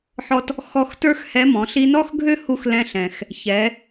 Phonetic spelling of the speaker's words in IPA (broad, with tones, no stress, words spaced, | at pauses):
ħɔ˧t | xɔ˧x tə˞˥xhɛ˧˥mɔ̃˩˧ ɬi˧nɔ˥xɡʱø˥hu˧x lɛ̃˧ɬɛ̃˩x | çɛ˩˧